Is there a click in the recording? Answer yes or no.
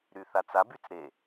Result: no